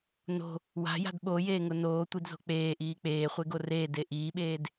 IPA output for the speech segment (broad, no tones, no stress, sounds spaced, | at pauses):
n o̤ | w a̤ j a̤ d ɓ o j eː ŋ ʊ n oː tʷ i d z o̤ k͡p eː ʔ iː k͡p eː χʷ e ɡ o r eː d e ʔ iː ɓ eː d